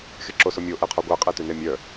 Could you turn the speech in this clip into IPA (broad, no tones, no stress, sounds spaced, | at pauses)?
x e ǁ o s o mʲ o ʔ ɛ qʰ ɔ ɡʷ æ qʼ ɛ t ʉ n e mʲ œ